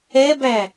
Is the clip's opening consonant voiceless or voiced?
voiced